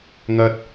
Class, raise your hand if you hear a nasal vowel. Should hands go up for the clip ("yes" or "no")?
no